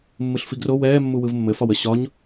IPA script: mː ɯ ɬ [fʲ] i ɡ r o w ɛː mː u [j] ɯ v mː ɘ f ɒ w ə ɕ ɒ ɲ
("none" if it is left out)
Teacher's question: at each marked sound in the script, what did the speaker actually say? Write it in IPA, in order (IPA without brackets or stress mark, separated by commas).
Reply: f, w